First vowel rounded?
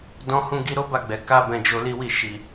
yes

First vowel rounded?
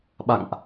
no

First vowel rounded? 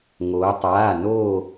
yes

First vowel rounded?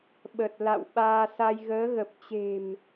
no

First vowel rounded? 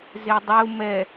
no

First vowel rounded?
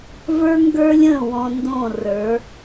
no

